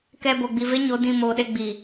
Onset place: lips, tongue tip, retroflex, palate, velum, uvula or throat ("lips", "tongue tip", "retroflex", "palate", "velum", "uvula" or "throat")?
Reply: velum